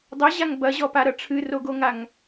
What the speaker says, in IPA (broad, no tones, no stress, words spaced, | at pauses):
dˤɐʑaŋ bɐʑɔpaɾɐ ʈ͡ʂʰɨroɡoŋaŋ